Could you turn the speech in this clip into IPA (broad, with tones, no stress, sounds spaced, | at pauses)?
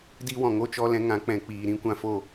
d i˦ w ɔ̃˨ ŋ o˦ t͡ʃ ɔ˧ l ɛ̃˧ ŋ ã˨˦ k͡p ɛ̃˨ k͡p iː˨ ɾ ĩ˦ kʷ ã˧ f o˦˨